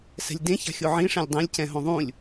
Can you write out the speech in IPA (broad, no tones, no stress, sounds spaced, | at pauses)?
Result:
s ɛ̤ lʲ d ẽ ç a̤ xʲ o ʕ ĩ ʂ ẽ lʲ dˤ ẽ lʲ c ɛ̃ ɦ õ ðˤ ũ lʲ